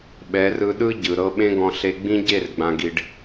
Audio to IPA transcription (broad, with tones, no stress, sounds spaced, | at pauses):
ɓ ɛ˨˦ r ɯ˧ ɗ ɯ˦ ɟ ɯ˨ ɾ ɤ˦ ɓ ẽ˦ ɡ ɔ̃˧ ɬ e˧ ɡ͡b ĩ˦ ɟ e˦˨ r ɡ͡b ã˨ ɡ i˨ ɖ